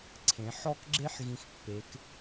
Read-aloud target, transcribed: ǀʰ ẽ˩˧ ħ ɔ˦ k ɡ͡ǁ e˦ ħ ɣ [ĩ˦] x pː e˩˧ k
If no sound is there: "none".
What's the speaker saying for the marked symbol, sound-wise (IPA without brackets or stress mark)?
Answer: ĩ˧˩